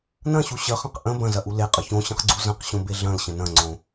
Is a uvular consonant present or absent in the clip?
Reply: present